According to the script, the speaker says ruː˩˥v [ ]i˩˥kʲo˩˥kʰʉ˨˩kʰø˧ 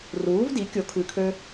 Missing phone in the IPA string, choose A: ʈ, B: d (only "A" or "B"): B